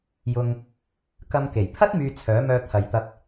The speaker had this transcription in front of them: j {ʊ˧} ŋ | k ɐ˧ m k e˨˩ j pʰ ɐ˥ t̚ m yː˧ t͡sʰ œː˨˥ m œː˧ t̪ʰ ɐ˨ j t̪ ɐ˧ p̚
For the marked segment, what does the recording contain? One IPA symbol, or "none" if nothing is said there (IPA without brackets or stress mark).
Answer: ʊ˧